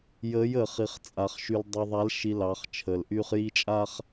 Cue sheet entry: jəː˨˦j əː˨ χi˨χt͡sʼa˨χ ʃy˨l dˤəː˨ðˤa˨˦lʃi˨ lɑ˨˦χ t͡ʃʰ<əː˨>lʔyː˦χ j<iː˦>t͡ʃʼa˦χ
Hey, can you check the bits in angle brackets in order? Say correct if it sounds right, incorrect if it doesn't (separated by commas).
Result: correct, incorrect